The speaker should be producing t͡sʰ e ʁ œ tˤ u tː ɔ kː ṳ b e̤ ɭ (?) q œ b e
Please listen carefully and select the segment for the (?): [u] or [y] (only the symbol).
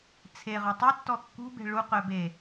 u